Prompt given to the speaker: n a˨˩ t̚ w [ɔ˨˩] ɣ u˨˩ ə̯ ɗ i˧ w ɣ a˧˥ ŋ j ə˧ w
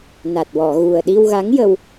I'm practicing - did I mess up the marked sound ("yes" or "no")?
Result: yes